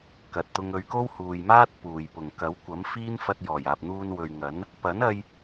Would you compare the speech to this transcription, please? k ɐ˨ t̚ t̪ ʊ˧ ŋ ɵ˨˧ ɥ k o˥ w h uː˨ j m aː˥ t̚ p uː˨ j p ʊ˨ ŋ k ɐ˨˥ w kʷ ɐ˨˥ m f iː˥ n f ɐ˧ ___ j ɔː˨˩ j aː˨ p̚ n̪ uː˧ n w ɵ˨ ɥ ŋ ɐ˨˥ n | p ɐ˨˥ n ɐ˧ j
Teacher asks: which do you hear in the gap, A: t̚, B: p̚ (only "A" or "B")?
A